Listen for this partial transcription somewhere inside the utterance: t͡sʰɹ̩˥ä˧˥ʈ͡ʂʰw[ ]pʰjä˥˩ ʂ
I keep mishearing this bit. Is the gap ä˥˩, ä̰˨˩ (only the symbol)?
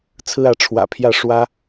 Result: ä̰˨˩